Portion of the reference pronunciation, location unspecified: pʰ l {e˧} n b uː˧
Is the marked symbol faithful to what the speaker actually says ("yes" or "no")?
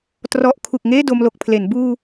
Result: no